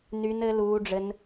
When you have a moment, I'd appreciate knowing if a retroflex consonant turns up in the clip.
yes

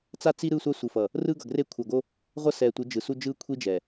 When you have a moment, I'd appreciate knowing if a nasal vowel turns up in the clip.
no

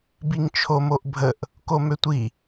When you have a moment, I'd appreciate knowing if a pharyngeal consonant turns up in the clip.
no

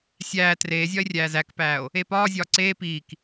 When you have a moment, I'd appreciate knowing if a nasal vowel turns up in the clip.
no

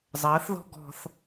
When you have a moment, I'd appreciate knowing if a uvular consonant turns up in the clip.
no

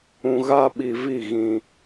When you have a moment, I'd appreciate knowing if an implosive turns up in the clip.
yes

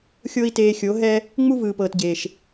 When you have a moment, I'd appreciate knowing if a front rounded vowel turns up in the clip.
no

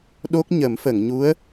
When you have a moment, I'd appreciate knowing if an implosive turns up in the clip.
yes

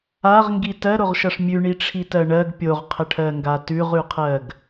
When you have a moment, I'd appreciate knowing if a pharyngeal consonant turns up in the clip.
no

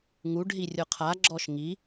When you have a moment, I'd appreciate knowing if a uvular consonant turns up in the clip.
yes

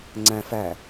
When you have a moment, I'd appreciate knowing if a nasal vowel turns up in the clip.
yes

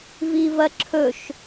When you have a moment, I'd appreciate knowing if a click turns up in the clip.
yes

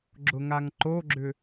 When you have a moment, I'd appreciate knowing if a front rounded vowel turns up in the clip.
yes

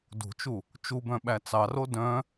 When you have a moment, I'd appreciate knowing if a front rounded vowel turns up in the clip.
yes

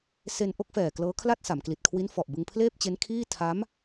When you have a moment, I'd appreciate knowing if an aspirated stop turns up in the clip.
yes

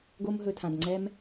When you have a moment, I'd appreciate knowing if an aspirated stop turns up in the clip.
yes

